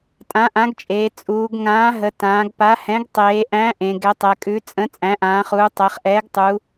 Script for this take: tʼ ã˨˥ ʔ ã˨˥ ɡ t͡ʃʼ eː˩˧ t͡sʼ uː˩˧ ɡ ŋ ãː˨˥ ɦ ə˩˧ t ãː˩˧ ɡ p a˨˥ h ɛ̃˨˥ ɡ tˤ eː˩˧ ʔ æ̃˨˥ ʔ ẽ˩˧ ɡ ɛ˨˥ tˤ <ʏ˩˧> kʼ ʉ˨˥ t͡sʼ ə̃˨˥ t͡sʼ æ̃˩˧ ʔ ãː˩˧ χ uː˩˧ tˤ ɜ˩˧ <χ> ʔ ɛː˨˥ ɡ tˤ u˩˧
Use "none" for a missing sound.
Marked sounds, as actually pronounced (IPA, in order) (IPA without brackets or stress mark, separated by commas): ɛ˩˧, χ